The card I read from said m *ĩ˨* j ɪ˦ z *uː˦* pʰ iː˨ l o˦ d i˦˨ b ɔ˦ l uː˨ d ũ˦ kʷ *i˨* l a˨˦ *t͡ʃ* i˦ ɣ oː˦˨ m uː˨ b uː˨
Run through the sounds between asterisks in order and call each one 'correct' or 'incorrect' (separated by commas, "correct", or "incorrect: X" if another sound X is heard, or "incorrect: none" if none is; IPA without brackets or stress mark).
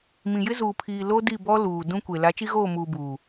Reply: correct, incorrect: uː˨, incorrect: e˨, correct